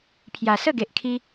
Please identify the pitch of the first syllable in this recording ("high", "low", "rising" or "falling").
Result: low